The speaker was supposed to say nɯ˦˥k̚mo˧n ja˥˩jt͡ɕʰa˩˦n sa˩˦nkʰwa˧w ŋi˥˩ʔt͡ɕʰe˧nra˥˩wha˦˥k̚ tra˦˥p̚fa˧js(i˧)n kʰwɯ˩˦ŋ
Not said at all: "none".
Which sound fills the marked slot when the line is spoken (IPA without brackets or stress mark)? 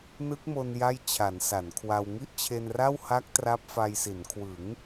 i˩˦